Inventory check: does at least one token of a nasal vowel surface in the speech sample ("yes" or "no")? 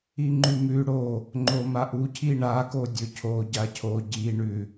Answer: no